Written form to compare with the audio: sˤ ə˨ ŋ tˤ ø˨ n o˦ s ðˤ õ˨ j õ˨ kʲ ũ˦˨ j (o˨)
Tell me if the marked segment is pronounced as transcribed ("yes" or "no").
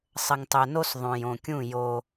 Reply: no